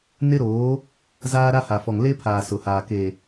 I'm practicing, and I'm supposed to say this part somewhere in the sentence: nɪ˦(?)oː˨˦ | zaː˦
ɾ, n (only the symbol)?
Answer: ɾ